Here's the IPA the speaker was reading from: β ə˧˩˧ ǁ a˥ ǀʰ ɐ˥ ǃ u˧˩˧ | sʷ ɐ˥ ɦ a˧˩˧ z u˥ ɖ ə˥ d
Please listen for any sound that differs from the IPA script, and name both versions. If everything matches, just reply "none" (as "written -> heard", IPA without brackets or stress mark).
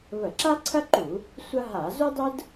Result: ɖ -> dˤ